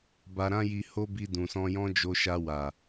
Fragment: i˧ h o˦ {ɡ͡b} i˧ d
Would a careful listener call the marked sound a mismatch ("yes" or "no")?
yes